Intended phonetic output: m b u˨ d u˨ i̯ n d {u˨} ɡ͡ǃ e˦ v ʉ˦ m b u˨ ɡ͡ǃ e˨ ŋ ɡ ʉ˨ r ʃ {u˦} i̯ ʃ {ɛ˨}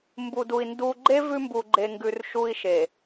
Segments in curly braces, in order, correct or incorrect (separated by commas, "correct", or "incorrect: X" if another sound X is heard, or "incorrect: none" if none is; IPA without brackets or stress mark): correct, correct, incorrect: e˨